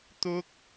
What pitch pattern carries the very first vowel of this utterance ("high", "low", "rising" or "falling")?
high